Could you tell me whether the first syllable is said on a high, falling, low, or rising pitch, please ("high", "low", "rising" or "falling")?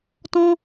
high